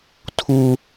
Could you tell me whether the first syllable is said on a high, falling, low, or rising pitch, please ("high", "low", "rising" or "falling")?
high